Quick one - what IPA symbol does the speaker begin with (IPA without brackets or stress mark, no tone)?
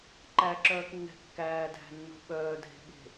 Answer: ǃ